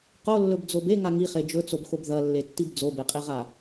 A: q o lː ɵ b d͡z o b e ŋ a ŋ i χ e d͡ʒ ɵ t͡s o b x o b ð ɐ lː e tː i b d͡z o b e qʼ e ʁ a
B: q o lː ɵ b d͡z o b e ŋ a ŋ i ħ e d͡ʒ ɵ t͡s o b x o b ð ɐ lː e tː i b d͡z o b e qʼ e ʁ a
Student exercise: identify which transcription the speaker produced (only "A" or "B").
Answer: A